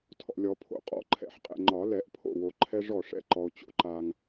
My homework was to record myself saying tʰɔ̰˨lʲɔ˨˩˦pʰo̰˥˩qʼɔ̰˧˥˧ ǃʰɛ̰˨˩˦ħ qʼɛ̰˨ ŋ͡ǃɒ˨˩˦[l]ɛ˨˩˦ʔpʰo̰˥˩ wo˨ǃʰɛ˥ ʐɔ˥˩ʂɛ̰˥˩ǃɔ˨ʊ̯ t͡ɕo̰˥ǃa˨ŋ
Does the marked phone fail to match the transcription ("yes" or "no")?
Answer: no